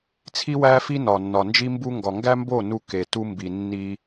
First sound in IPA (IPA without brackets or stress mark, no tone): t͡sʰ